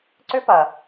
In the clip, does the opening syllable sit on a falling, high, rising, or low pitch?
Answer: high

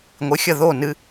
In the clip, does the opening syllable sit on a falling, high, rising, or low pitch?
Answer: rising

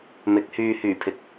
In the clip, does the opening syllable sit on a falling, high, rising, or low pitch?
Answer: rising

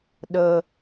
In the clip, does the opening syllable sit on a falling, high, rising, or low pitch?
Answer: low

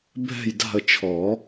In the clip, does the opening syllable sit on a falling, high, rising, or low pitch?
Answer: falling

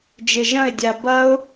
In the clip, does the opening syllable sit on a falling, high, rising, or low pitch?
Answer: low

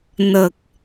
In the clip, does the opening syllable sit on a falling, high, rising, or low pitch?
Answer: low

